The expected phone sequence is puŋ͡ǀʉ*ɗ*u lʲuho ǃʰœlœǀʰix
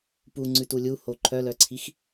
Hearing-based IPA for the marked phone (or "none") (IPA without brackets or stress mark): t